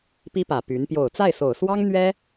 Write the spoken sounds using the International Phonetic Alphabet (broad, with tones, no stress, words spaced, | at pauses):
pi˥pä˨˩ py˧˥n pjo˨˩ʊ̯t͡sa˥˩ɪ̯so˨˩ʊ̯swɑ˥ŋ n̪ɥɛ˥